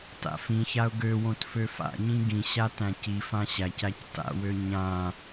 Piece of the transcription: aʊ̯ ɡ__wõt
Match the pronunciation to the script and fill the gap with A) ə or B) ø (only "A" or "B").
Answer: B